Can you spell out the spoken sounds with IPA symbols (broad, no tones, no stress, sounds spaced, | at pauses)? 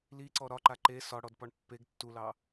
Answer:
l i ǀ ɔ ɾ ɒ ǃ a ǃ e s ɒ ɽ ɔ d p ɒ ɳ pː e ɡ tː u l ɑ